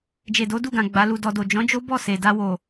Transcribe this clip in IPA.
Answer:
d͡ʒ e˨ d o˨˦ d u˦˨ ɡ ã˨ ɡ͡b a˨˦ l u˧ d ɔ˧ d o˨ d͡ʒ ɔ̃˨˦ d͡ʒ o˦ b ɔ˦˨ s e˨ d a˧ w o˨

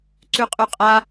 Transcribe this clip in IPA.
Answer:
ǀ ʉ qʼ ʉ qʼ a

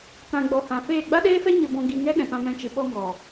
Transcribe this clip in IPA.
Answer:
t ã˨ ɡ͡b ɔ˨ h ã˨ f eː˦˨ ɡ͡b a˦ ɗ eː˦ f ɛ˦ ɲ ə˧ b ɔ̃˧ ɡ i˧ ŋ ɛ˦ ɗ ɛ̃˨ p ã˧ m ɛ̃˧ t͡ʃ ɨ˨ ɓ ɔ˧ ŋ ɔ˨

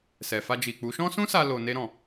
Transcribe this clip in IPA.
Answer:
s ɛ˨ f a˧ d͡ʒ i˨ k͡p u˨˦ ʃ ɔ̃˦ s ũ˦ s a˧ l o˨ n e˧ ɾ ɔ̃˨

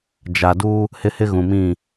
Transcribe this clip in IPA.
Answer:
d͡ʒ a˨ d u˦ | h ɪ˦ h ɪ˦ ɣ ũ˨ m ĩ˦˨

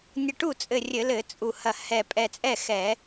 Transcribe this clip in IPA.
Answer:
nʲ ɘ˧˩ ʈ u˥˩ t͡sʼ ɘ˧˩ rʲ ɘ˧˩˧ l ɘ˧˩˧ t͡sʼ u˧˩ h ɐ˧˩ h ɛ˧˩ pʼ ɛ˧˩ t͡sʼ ɛ˥˩ x ɛ˧˩˧

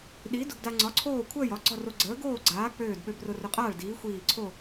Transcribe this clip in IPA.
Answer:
ɗ i˨˥ d ʊ˧ ɡ d a˧ ŋ͡ǀ ɒ˨˥ ǀʰ oː˥˨ kʷʰ əː˥˨ j ɒ˨˥ ɡ͡ǀ ɒ˥˨ r o˧ ɡ͡ǀ əː˨˥ ɡ oː˥˨ ɡ͡ǀ aː˨˥ k͡p øː˧˩ d ɓ ø˧ b r ʊ˧ r ʊ˧ qʼ aː˥˨ ɭ d iː˨˥ xʷ iː˧˩ ǀʰ o˥˨

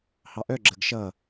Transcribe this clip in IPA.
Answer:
h ɑ ʔ œ ɡ͡ǁ ə ɡ ʃ ʌ

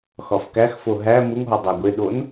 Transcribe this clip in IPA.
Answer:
x ɒ f k æ x f o ɦ æ m u ŋ ɦ ɒ dˤ æ ɡʷ e ɗ o n

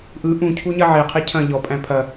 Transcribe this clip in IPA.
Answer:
ʔ ɯ ʔ ũ cʰ u ɲ ɐ ʕ e qʰ e cʰ ɐ̃ ʎ ɔ pʼ æ̃ pʰ ɐ

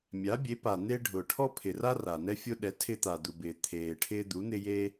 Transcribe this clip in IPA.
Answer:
mʲ a˩˥ bʲ e˩˥ p a˩ n̪ e˦ ɖʱ ʊ˩ ʈʰ ɔ˦ pʰ ɪ˩ r a˦ r a˩ n ɛ˦ fʲ o˦ ɗ ɛ˩˥ tʰ ɪ˦ t̪ a˩ d̪ u˩ b ɪː˩ t̪ʰ eː˩ ʈʰ ɪː˦ d̪ u˩˥ n̪ ɪ˦ j e˦

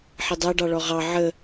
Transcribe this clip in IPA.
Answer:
ħ ɪ dˤ æ ɖ ɑ ɭ ɔ ʁ ɑ ʕ ə

